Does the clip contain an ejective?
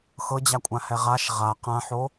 yes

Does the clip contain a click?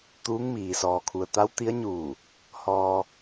no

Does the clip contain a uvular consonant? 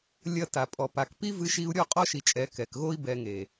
yes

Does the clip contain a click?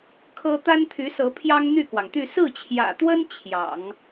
no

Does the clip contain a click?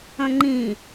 yes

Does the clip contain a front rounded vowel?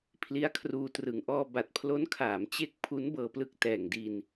no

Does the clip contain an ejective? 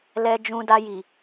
no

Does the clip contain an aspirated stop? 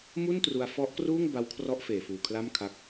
yes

